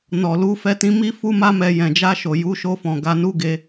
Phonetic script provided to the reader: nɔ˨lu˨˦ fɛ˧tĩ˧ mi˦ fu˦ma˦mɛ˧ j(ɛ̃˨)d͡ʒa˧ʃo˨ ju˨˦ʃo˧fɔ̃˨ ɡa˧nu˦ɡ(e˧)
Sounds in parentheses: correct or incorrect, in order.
correct, correct

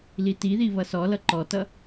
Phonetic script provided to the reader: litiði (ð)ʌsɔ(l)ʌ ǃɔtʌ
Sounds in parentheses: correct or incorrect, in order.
incorrect: β, correct

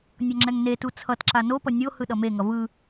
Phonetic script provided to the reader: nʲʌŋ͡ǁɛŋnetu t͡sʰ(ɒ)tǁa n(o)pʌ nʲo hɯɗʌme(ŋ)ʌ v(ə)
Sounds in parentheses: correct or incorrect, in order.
incorrect: ʌ, correct, correct, incorrect: ɯ

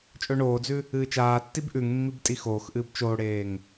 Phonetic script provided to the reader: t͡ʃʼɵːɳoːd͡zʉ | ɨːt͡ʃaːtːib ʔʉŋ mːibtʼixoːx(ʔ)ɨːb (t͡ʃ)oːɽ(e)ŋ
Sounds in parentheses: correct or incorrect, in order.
correct, correct, incorrect: eː

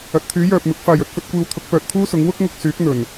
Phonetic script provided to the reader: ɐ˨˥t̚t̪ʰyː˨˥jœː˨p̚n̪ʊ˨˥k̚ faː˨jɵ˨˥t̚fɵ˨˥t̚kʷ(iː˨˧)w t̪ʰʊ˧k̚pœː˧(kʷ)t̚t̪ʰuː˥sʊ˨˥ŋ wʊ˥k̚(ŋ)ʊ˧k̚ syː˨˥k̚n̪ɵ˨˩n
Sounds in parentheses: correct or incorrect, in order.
incorrect: iː˧, incorrect: none, correct

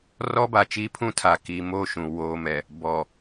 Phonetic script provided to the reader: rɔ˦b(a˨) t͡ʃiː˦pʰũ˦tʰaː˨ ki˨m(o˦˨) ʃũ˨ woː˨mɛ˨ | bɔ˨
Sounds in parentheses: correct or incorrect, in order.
correct, correct

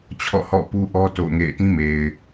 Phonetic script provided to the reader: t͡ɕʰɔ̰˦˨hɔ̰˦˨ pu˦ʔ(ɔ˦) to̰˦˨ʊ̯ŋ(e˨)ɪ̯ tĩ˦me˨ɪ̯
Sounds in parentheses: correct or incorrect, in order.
correct, incorrect: ḛ˦˨

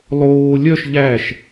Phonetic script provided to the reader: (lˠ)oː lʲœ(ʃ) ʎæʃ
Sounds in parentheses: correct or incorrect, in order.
correct, correct

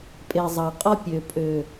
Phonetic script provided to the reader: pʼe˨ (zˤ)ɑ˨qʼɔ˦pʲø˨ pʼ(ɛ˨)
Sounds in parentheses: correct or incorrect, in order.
correct, incorrect: ø˨

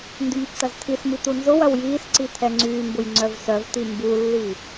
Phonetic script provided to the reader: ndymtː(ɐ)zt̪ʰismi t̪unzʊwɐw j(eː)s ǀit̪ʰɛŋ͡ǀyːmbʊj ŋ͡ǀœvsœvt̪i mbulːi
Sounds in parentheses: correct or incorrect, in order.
correct, incorrect: iː

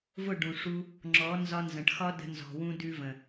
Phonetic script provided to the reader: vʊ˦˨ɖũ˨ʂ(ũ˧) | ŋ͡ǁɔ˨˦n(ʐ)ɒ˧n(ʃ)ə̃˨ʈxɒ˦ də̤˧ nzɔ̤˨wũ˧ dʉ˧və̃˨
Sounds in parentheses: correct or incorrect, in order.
incorrect: u˧, incorrect: z, incorrect: z

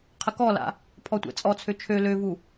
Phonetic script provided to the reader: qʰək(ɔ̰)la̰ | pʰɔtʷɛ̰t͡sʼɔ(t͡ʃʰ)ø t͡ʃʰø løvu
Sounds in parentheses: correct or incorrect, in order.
incorrect: ɔ, incorrect: t͡sʰ

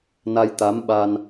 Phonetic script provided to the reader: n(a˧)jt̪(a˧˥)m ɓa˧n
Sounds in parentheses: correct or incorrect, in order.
correct, correct

